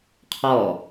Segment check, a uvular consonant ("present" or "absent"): present